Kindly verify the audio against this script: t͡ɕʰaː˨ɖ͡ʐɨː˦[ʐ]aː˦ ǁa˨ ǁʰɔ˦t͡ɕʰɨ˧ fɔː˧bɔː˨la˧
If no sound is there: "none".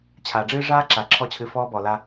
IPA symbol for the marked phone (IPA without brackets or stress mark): ʐ